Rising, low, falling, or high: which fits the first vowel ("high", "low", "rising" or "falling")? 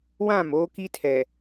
falling